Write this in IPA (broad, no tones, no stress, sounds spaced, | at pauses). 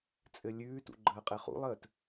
t͡sʼ ɘ lʲ ʉː t ṵ ɡ͡ǃ əː qʼ ɪ χ ṵ lˠ əː t